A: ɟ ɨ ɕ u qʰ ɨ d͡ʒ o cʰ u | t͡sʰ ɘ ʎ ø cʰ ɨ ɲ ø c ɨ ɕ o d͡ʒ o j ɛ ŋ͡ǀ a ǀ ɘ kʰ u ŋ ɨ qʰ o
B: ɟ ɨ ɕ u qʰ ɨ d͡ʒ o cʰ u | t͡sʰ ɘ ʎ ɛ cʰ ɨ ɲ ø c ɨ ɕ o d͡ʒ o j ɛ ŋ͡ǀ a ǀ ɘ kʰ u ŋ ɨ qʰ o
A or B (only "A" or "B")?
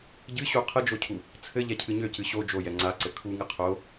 B